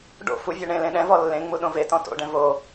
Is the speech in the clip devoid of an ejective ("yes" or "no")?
yes